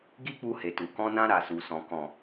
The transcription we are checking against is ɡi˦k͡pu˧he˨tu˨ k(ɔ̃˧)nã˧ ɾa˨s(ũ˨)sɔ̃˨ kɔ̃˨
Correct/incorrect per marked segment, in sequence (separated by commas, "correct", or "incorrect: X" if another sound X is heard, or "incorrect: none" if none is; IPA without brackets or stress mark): correct, incorrect: u˨